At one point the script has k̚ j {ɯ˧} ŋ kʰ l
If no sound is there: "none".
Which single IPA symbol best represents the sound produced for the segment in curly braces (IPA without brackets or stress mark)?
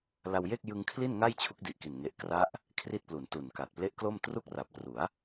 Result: ɯ˧